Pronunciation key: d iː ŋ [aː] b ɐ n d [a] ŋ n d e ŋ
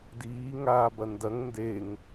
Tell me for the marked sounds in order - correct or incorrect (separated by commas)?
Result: correct, incorrect